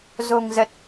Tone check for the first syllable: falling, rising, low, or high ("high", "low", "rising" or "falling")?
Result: low